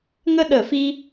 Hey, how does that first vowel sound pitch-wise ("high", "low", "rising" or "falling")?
high